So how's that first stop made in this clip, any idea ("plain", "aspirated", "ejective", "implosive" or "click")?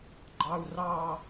click